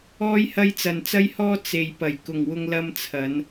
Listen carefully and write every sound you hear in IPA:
ɔː˧jhɐ˧j t͡sɐ˨nt͡sɐ˥jhɔː˥ t͡se˨jpɐ˨˩j kʊ˨ŋwʊ˧ŋ lɐ˧mt͡sʰɐ˨˧n

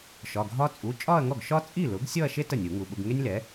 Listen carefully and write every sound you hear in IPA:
ʃɒ˩˧˩ɡʱɒ˥ t͡sʼu˩˧˩t͡ʃʼɒ˥˧ɐ̯ŋɔ˥˩ɡ ʃɒ˥ t͡sʼi˥˩lʊ˩˥ɡ sʲɔ˥˧ɐ̯ʃe˥ tə˥˩nʲu˨˩˦ŋu˩˧˩ɓʊ˥˧ɡ ŋe˥nʲlɛ˩˥

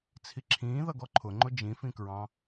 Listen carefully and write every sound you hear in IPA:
t͡sʰiǁʰĩː ðʌɡɔǃʰʊŋ͡ǃʊ d͡ʒĩfĩkɹɑ̃

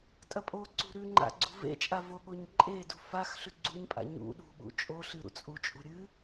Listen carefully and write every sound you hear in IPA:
tʼɐpʼoǀṳ ɾʉŋ͡ǃa̰ ɡ͡ǀṳvḛt͡ʃʼa voɠoɲǃʼedṳ fax ɬʉɡ͡ǀuɲpʼa̰ ɲṵ ɗṳɓṵ t͡ʃʼo ɬɨɾṵt͡sʼut͡ʃʼṳ ɾʲɨ

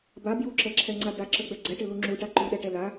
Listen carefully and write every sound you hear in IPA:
ba bjuǁɛǁʰɛŋ͡ǀa daǁəɡ͡bɛ ɡ͡ǀɛʈɪlu ŋ͡ǁuʈa ǃuɗɛʈɛ la

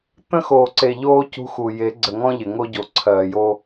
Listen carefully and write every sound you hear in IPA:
t̪ə̃˦xoː˨ǀe˨ ʎoː˦ cṳ˦xu˨ je˨˦ɡ͡ǀə˨ŋɔ̃˦ ʎɪ˨ ŋo˦ɟo˨ǀʰɜː˨jo˦

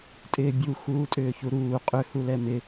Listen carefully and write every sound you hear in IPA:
tʼɪːbʲu xuːtʼʏːçuɾuː qʼʏ hulɛmɪ

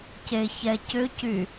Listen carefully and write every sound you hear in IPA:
ceçɛcʏcy

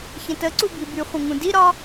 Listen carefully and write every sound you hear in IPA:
çə̃təǀu bibyχʷə̃ ŋũdiɾɒ

